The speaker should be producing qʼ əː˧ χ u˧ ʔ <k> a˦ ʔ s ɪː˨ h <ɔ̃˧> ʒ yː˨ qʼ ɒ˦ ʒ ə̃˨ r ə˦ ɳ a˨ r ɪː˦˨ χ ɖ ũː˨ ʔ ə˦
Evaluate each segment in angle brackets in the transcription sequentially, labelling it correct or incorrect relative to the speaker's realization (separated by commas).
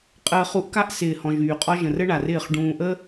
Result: correct, incorrect